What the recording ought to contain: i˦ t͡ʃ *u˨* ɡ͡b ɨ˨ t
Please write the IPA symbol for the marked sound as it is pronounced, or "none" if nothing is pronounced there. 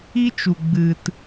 u˨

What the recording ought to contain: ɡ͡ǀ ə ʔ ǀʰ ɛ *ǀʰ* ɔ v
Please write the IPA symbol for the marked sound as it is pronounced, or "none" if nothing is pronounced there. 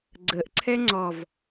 ŋ͡ǀ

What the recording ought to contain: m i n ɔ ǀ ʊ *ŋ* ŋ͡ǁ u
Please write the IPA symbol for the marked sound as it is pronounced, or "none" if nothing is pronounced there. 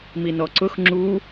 x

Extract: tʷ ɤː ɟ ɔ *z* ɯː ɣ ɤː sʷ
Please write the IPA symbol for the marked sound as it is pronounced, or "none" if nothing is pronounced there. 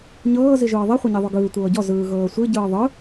z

